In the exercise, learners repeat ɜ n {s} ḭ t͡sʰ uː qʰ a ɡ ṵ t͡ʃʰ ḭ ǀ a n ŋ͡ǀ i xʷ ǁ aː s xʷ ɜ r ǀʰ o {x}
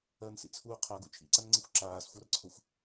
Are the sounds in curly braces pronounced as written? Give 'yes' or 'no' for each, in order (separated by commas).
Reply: yes, no